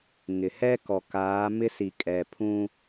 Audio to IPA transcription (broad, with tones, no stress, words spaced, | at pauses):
ŋɪ˨ hɛ˦kɔ˨kaː˨˦ mɪ˦si˨kʼɛ˨pʰũ˦